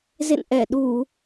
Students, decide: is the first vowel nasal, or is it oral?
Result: oral